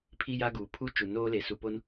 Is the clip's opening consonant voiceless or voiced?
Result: voiceless